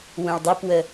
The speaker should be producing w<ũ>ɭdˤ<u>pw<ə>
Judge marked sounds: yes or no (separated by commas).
yes, yes, yes